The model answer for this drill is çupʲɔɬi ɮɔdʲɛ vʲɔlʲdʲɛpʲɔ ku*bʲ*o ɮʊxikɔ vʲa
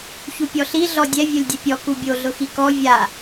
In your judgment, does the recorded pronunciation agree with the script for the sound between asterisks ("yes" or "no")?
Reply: yes